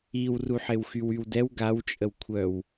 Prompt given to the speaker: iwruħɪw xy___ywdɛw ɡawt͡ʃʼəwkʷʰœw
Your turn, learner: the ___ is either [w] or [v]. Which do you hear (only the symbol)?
w